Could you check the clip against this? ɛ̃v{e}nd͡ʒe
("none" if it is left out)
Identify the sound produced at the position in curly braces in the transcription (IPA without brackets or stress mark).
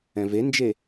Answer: e